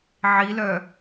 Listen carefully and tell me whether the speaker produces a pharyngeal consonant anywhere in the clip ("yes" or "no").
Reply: yes